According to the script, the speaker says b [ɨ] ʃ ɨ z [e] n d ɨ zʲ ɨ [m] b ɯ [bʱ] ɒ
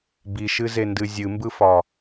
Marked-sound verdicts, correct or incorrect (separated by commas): incorrect, correct, correct, incorrect